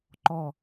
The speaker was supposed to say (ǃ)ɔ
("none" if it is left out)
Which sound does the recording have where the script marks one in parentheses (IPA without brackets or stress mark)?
ǃ